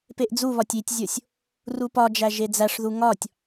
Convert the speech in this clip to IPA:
peʔd͡zuβɒtʲ itʲzʲosʲ | rupɒd͡ʒæ ʒed͡zæʂðu ŋɒtʲ

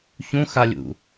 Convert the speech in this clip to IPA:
çũxalʲṵ

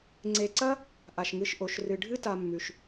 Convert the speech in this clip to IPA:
ŋ͡ǀe˨ǀɐ˦ | ʔa˩ʃŋɨ˨ʃʔo˩ʃ rɨ˩ɖʱɨ˦ta˨mːʉ˩ʃ

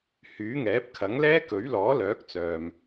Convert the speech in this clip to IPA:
hyː˨˥ŋɛː˨˥p̚kʰɐ˨˥ŋlɛː˥ kɵ˨˥ɥlɔː˨˥ lœː˨˥k̚t͡sœː˨m

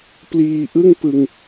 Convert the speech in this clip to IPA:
pliː˧ʔɯ˥˩ŋpɯ˧ŋ

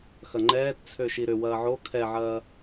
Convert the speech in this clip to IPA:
xɐŋ͡ǃɛːt t͡sʰøʃiɾʏ wɐːʕo kʰɛʕɐː

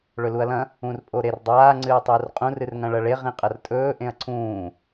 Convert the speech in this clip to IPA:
ɭɵluɐ̯lɐ̃ | ũrpʼoɾerdˤaː ŋ͡ǀɨːtˤɵːrqʼũ rɨrŋɐ̃ɭɐɭe ʁĩqʼɐrtʼɵː ʔẽɐ̯ǀʰũː

